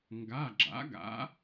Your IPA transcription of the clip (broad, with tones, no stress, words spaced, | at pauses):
ŋɡa˩˧˩ɡ͡ǁa̰˩˥ɡa̰˩˥